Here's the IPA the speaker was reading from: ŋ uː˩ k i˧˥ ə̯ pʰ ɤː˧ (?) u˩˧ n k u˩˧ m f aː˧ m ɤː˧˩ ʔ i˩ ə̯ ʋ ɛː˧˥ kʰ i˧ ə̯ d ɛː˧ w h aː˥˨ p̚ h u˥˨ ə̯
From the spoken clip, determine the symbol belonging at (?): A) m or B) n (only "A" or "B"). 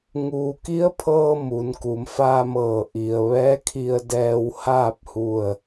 A